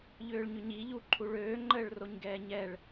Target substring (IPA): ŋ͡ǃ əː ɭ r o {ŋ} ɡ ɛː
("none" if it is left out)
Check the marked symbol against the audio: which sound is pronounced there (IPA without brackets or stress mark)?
ɲ